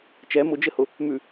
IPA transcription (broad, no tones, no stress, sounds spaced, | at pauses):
t͡ʃ ɛ m ʊ d͡ʒ ɘ h ʊ | m ʉ